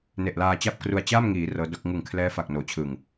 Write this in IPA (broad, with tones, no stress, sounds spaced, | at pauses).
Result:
n e˨˩ ʔ l aː˧ t͡ɕ a˥˩ p̚ k r u˧ a̯ t͡ɕ aː˥˩ m ŋ iː˩˦ r ɤː˦˥ d o˦˥ k̚ ŋ ɯ˨˩ ŋ kʰ l ɛː˦˥ f a˨˩ k̚ n oː˩˦ t͡ɕʰ ɯ˨˩ ŋ